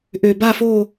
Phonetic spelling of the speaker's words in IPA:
ʔø˨˩ba˥˧fo˥˧

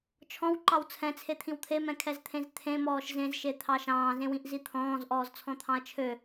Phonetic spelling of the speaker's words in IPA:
t͡ʃʰɔ̃wǃɑw t͡sʰɛ̃t͡sʰet̪ʰĩw t̪ʰemɛ̃kʰɛzt̪ʰẽz t̪ʰẽmɔːʃ zẽzʃet̪ʰɑ ʃɑ̃ːzẽwĩʔzi t̪ʰɔ̃ːzʔɔːzt͡sʰɔ̃t̪ʰɑ̃ɐ̯ t͡ʃʰø

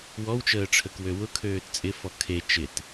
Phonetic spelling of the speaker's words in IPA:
wɔwt͡ʃəːʈ͡ʂʰək wøwʊ kʰøːtt͡sʼɪfɔ kʰe t͡ʃɪt

